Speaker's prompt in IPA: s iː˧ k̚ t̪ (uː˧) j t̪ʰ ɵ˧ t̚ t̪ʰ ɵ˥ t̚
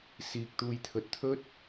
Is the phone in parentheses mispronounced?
no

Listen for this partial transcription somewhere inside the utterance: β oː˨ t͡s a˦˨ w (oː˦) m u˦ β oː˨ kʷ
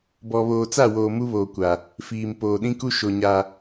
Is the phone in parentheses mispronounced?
yes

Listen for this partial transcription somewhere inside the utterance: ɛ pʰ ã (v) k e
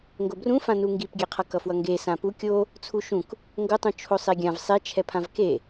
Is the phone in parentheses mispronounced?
no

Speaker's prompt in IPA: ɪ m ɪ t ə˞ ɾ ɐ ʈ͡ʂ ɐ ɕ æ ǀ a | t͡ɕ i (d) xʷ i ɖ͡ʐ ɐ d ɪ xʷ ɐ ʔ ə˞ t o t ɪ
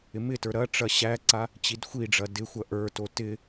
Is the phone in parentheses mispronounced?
no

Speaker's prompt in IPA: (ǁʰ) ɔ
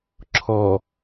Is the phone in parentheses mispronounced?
no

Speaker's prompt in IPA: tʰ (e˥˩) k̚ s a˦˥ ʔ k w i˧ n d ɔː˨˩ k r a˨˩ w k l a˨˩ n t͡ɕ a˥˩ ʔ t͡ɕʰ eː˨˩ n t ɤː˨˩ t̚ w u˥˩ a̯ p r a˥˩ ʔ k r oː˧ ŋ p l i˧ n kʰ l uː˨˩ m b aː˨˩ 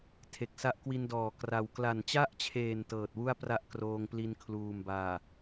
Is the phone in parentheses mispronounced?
yes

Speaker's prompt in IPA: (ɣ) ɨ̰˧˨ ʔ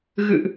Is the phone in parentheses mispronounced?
no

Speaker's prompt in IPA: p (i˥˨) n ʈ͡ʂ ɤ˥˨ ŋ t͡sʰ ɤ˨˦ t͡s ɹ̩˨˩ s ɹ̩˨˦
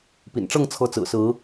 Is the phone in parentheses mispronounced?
yes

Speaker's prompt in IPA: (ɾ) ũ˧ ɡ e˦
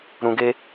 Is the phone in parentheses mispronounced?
no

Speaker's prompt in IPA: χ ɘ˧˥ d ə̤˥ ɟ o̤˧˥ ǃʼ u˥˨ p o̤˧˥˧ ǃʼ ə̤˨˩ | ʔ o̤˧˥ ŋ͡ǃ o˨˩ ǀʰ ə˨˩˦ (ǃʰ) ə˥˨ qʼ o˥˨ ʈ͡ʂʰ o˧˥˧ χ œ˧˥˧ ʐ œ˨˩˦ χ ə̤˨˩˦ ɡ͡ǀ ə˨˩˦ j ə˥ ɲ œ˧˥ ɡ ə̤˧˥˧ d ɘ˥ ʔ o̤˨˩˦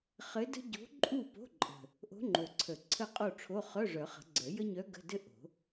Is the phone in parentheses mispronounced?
yes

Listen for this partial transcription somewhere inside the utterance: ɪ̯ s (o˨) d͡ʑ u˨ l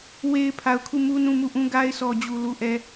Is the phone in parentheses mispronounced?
yes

